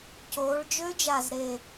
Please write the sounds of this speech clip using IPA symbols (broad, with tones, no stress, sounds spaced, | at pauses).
c oː˩˧ ɭ d͡ʒ ø˦˥ d͡ʒ a˨˩ z ɾ e˨˩